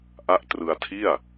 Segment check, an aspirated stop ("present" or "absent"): present